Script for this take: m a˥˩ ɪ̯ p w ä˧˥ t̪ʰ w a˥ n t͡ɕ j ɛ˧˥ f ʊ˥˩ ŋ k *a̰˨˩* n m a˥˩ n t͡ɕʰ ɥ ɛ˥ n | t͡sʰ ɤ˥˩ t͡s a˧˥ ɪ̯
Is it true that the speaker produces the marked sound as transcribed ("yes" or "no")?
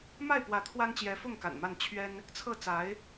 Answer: yes